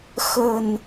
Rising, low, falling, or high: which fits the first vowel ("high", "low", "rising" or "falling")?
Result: low